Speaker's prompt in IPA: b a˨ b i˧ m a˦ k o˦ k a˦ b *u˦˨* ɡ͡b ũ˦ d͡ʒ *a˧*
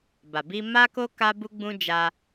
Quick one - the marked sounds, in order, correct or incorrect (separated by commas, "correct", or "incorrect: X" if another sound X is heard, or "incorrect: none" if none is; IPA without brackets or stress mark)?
incorrect: u˦, correct